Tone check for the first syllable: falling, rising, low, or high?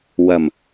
low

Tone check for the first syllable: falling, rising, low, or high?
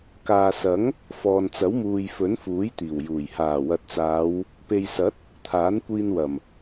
low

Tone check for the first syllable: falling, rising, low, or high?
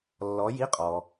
rising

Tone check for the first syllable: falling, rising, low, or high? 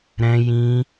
high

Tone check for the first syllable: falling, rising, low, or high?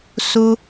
high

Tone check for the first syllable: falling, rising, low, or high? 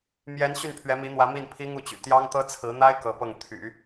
rising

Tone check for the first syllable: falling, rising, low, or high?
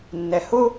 low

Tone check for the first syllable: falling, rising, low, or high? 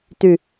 low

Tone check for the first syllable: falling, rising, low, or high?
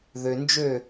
low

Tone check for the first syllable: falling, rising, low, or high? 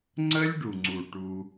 high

